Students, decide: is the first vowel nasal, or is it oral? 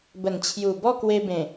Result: oral